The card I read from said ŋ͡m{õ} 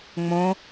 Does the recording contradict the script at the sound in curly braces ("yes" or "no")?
no